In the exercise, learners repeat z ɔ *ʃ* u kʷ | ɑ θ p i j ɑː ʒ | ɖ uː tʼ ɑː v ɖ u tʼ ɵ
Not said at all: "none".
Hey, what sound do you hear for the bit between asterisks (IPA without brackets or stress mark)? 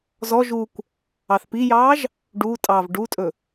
ʒ